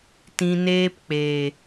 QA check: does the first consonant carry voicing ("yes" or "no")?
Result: no